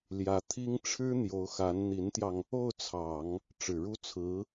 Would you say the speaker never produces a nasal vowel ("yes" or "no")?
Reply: yes